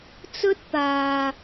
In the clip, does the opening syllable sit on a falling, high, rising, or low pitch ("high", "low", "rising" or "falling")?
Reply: high